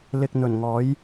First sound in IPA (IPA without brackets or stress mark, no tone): l